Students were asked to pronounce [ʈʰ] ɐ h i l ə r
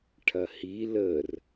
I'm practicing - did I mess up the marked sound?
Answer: no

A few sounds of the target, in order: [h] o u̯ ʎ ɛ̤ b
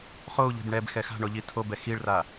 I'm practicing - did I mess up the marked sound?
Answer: yes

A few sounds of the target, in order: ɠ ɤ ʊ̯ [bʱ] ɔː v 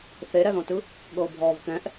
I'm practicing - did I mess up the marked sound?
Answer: no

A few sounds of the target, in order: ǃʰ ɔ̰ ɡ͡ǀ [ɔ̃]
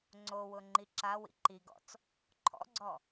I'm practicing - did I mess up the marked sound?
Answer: yes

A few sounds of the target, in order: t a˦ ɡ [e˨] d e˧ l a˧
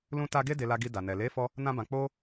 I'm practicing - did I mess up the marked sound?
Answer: yes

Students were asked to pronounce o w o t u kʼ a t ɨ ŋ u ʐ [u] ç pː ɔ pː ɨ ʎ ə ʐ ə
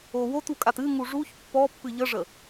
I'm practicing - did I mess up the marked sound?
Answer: no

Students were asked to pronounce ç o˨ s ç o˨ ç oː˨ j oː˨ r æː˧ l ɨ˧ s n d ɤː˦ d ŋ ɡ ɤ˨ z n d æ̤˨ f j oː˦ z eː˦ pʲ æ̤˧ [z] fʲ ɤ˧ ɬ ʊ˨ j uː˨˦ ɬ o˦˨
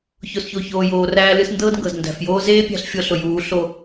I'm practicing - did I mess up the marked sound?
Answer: yes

